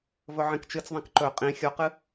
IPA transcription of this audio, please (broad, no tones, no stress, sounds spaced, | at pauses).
v ɵ ʕ ĩ k t͡ʃ ɨ t͡s ðˤ ĩ k ǃ ɵ qʼ ĩ xʲ o q ɨ